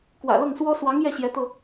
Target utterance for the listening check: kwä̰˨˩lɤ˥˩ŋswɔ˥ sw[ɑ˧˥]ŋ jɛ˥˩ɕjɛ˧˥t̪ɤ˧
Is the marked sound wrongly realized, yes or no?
no